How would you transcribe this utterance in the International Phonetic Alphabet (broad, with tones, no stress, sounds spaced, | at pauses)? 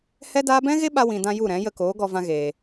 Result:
h ɛ˦ d aː˦ b ɛ̃˦ ɣ e˦ ɓ a˧ w ĩ˨ d ã˧ j u˦˨ ɾ ɛ̃˨˦ j ə˧ k oː˨˦ ɡ ɔ˧ v ã˧ ɣ eː˨